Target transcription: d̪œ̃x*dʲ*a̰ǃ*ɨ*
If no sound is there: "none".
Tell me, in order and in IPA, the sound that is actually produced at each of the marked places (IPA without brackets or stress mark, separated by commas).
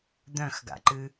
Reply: ɡ, ɨ